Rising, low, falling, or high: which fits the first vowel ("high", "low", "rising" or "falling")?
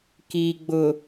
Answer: low